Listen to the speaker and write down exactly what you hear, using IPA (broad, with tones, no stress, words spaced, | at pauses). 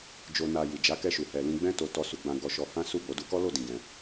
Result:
d͡ʒo˧na˧ ji˨d͡ʒa˨˦kɛ˧ ʃu˨ hɛ˧lĩ˦ ɡ͡bɛ̃˦to˧ tɔ˧su˧ɡ͡bã˧ ɡɔ˧ʃɔ˧hã˦ su˦˨bo˨˦du˧ kɔ˦lo˦˨dĩ˨ ɡɛ̃˧